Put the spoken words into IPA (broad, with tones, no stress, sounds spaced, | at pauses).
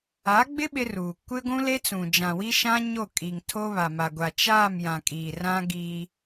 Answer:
a˨˦ ɡ͡b ɪ˦ ɓ ɪ˦ r uː˨ kʷ ɪ˦ ɡʷ ũ˦ l e˦ t͡s ũ˨ d͡ʒ ã˨ w i˦ ʃ ã˦ ɲ o˦˨ kʼ i˨ ŋ tʰ o˦ β a˨ m a˨ ɡʷ a˨ t͡ʃ aː˦˨ m j ã˨ kʼ iː˨ r ã˦ ɡ iː˦